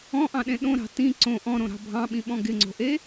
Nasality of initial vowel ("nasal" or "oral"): nasal